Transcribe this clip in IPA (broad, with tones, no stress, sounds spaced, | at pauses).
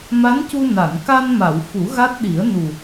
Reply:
m a˧˥ n c u˧ n a˨˩˨ n k a˧ n m a˨˩˨ w f u˨˩˦ ɣ a˦˥ t̚ ɗ i˨˩˦ ə̯ n u˨˩